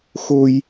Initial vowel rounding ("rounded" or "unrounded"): rounded